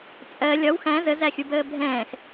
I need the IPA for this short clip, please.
t͡sʼ ɜ lʲ ɒ w x æ̃ z ə z æ xʲ u b əː bʱ ɛ̃ː x

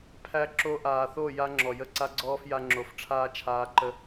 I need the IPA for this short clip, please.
pʰ æ˦ ǁ o˧ ʔ aː˨ θ o˦˨ j a˧ ŋ͡ǁ ɔ˨ j ə˦˨ ǀ a˦ ɡ͡ǀ ɔː˦ f j a˧ ŋ͡ǁ o˨ f ʈ͡ʂʰ aː˦ t͡ʃʰ aː˧ ǃ ə˧

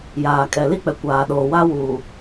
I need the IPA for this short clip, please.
j aː˨ kʼ ɛ˨ l i˦˨ k͡p ɛ˨ kʷ aː˨ ɗ oː˨ w a˦ w uː˨

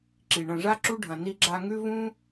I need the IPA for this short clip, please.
ǁ i˩ ɳ ɐ̃˨ ʐ a˥ ǁ u˥ ɖʱ ɐ̃˨ n i˦ ɡ͡ǁ a˦ ŋ ʉ˥ v ũ˥

